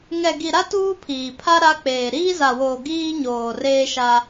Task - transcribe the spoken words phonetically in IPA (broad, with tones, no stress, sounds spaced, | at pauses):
ŋ ɛ˨ ɡ i˨ ɾ a˦ t uː˦ pʰ iː˨ pʰ a˦ ɾ a˦ k͡p eː˨ ɾ iː˦ z a˨ w oː˨ ɡ iː˦ ɲ oː˨ r eː˦ ʃ a˦